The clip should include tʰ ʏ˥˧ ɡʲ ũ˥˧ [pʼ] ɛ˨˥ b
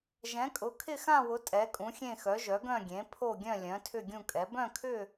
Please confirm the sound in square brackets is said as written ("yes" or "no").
no